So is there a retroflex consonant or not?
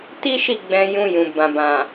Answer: no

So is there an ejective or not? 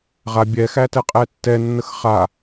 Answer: yes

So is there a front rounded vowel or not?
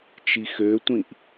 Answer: yes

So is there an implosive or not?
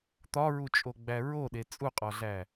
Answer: yes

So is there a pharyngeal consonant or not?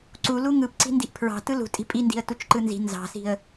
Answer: no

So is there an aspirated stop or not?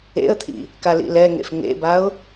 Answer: yes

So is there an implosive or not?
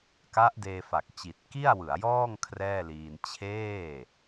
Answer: no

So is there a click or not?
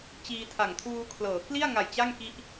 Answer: no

